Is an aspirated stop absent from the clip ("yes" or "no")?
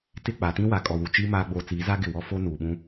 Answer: yes